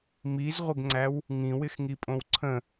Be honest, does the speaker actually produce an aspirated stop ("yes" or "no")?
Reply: yes